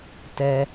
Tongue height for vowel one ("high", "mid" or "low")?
mid